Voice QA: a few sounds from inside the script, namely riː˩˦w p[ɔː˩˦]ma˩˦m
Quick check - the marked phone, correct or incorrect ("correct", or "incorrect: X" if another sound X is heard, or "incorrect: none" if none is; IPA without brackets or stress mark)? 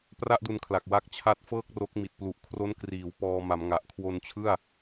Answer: incorrect: ɔː˧